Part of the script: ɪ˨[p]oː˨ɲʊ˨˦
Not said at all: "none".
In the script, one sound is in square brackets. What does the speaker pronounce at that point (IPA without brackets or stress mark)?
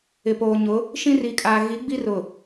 p